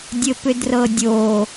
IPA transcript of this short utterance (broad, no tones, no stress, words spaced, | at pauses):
dʲɘpʏdrɤdʲo